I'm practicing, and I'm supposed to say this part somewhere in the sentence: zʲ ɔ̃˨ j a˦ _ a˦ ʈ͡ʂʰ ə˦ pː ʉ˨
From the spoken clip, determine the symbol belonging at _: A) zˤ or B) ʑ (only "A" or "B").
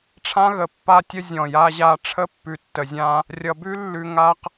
B